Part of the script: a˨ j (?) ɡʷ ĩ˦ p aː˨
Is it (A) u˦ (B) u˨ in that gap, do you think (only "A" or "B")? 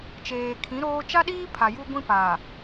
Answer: A